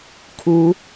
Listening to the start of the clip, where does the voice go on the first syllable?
high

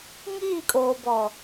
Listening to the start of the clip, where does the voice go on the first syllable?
falling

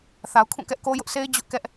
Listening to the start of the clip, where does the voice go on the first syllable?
low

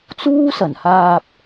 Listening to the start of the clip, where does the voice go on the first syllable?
high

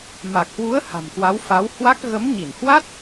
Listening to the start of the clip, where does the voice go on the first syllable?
low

